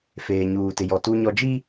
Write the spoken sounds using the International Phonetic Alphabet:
feː˨ɲuː˨tɪ˨jɔ˨ tu˦ɲɔ˦ d͡ʒi˦

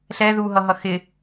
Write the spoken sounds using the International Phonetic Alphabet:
ɬɛ ðuɦʌɦʌ xɪ

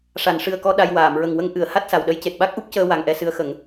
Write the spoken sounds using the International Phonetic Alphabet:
ʂa˨˩˨nʂɨ˨˩ə̯kɔ˧ ɗa˧jwaː˨˩˨m ɹə˨˩ŋwə˧ŋ ʔɨ˨˩˨ə̯ ha˦˥t̚sa˨˩wɗə˧˥j ce˨˩t̚ɓa˦˥k̚ʔu˦˥p̚cəː˧ wa˨˩ŋʔɛ˧sɨ˧˥ə̯xə˨˩˦ŋ

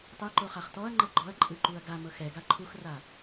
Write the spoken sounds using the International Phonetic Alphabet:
tˤɛ ǃoχaχtɔɐ̯ŋ͡ǃɤ ɡ͡ǃɔɐ̯ ǃʼɯǃuɐ̯ɡamɤx ɛɡa ǃʰuxra

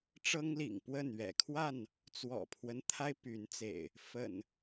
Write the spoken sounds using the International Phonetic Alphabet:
ʈ͡ʂɤ˦ŋlḭ˨˩ŋ pwə˥˨n ɥɛ̰˨˩kʰwa˥˨n | t͡swɔ̰˨˩pʰwə˦nt̪ʰa˦ɪ̯ py˨˦nt͡sḛ˨˩ɪ̯ | fə̰˨˩n

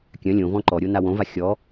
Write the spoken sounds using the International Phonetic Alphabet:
kʲœ̃ lʲõvɔ̃ ǃɔɾʲo nawõva xʲɔ

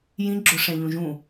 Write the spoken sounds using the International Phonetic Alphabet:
jĩ ɡ͡ǁʊʂɛ̃ ʎũʒũ

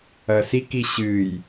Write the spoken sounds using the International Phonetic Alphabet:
ɐsiki ɕɨj

